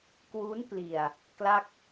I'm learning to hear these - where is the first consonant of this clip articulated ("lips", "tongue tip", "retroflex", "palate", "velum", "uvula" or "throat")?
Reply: velum